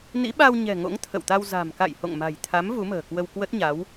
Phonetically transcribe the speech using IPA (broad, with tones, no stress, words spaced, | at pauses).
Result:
nḭ˧˥ɓa˧wɲɛ̤˨˩ ŋo̰˧˥ŋ t̪ʰə̰˧˨wt̪a˧w za̤˨˩m ka̰˧˨jho̰˧˨ŋma̤˨˩jt̪ʰa˨˦m vu˨˦mə̤ː˨˩kwə˧wkwə˦˥t̚ ɲa˨˦w